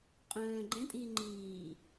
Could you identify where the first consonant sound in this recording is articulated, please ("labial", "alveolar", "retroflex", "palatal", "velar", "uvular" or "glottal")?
uvular